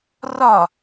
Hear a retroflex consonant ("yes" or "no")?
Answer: no